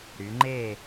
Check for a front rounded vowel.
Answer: present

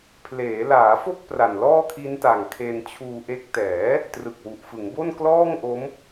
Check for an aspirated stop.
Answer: present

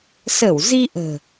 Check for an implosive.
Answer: absent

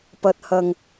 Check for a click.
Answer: absent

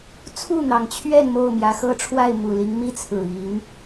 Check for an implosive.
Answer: absent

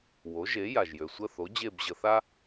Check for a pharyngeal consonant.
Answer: absent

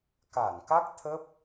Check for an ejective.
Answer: absent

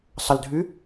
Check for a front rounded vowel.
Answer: present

